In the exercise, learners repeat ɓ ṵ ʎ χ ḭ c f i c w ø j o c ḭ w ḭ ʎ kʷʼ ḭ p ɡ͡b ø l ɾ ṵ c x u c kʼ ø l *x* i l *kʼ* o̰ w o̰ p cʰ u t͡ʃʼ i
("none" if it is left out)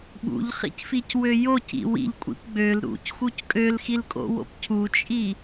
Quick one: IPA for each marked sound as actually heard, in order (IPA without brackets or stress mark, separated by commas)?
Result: x, kʼ